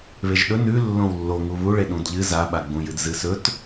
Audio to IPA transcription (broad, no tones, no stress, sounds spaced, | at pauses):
β e ʒ ɗ ɵ n ʉ lː õ w lː o ŋ u β u ɭ e ɗ ũ d ʎ ɨ z a ɓ a ɡ͡b ũ j ɨ d z ɨ s ɵ t